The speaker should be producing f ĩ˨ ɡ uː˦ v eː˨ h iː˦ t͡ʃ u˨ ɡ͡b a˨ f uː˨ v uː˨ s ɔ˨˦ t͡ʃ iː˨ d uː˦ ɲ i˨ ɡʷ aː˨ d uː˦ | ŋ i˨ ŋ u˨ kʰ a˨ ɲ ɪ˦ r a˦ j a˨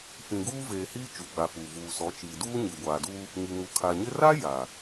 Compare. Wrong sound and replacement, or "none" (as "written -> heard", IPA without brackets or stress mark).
none